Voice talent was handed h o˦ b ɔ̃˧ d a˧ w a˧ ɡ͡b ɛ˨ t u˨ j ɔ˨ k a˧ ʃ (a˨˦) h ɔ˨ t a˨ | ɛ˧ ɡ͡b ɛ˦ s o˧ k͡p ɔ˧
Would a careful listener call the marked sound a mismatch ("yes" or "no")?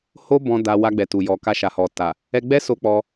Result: yes